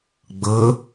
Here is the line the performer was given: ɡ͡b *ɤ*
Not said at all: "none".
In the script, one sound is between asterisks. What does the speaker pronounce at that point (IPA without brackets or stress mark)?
ɤ